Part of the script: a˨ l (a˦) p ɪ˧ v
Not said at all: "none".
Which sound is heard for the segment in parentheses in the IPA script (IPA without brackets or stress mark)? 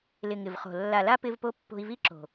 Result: a˦